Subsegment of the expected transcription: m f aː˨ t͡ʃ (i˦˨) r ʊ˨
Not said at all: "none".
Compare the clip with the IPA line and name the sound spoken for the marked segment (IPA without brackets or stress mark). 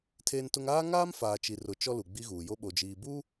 i˨